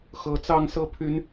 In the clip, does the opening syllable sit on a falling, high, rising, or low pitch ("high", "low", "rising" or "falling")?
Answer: rising